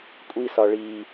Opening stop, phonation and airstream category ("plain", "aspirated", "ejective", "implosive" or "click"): ejective